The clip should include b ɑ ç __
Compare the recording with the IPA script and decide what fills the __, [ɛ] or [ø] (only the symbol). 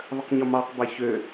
ø